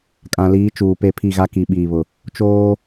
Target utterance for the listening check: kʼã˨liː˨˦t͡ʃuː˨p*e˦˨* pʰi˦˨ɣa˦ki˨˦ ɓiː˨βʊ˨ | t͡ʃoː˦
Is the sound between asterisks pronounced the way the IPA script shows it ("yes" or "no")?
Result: yes